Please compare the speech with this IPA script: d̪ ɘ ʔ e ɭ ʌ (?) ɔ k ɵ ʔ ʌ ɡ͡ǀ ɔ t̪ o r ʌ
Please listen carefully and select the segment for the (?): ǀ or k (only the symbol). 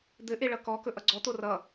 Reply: k